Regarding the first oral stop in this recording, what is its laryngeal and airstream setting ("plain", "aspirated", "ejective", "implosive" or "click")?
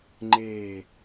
click